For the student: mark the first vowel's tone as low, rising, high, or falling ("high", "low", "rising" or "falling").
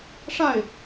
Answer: falling